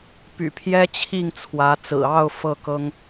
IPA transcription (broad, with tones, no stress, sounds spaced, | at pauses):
p y̰˨˩ pʰ j ɛ˥ t͡ɕʰ i˥˩ ŋ t͡sʰ w ä˧˥ t͡s ɹ̩˨˩ ɑ˥˧ ʊ̯ f ɤ˥˩ k ɤ˥ ŋ